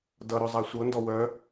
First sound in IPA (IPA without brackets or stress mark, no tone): d